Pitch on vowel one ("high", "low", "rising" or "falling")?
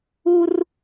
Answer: high